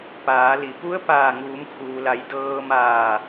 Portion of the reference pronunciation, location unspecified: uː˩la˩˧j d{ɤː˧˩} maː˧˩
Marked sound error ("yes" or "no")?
yes